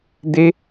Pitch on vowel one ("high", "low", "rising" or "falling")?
high